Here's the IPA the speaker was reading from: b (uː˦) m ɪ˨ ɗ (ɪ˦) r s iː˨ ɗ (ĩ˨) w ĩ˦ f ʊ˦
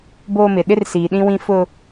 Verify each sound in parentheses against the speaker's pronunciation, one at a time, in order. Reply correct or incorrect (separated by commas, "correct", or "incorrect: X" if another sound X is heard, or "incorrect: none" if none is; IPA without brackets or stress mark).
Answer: incorrect: oː˦, correct, incorrect: ĩ˦